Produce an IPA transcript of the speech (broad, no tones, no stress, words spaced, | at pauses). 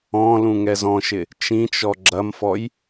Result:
ɔ̃lũ ŋɛzɔ̃ʃɪ | t͡ʃĩt͡ʃɔ ɡ͡ǁɐmfɔj